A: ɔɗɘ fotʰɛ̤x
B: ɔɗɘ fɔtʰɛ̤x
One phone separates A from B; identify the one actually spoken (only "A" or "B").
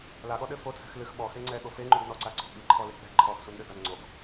A